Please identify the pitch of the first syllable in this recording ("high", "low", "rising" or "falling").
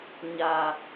low